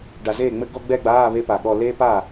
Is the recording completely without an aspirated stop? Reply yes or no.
yes